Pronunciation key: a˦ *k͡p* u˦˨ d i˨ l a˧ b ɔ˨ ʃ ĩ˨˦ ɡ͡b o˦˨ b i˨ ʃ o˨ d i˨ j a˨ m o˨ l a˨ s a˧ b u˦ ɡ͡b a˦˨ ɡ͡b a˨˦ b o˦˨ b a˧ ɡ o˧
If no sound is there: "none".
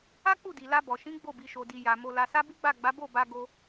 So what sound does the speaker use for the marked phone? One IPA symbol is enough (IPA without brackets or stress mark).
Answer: k͡p